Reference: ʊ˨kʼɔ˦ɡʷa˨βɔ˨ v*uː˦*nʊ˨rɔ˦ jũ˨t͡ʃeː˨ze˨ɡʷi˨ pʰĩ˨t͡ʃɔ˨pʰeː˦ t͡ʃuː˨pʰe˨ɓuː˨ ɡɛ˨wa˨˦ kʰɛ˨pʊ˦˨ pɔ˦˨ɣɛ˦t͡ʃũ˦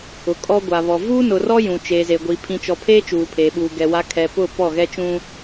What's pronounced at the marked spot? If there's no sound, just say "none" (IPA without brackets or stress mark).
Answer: uː˦